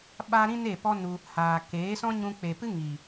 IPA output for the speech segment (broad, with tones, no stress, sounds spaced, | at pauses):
ɓ a˧ ɾ ĩ˦ n e˦˨ p ɔ˦ n u˧ | h aː˨ k eː˨˦ s ɔ̃˦ ɲ ũ˧ k͡p e˨ p ɨ˦ ŋ iː˨